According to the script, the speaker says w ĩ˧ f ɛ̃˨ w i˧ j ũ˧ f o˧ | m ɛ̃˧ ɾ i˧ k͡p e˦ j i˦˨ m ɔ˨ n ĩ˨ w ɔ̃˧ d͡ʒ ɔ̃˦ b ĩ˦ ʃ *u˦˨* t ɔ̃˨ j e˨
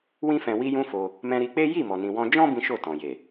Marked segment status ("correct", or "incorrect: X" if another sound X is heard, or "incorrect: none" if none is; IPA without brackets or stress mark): incorrect: o˦˨